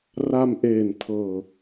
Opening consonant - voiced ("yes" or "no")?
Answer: yes